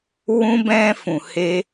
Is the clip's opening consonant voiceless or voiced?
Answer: voiced